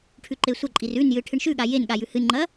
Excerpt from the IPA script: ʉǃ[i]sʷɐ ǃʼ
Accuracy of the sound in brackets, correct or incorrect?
incorrect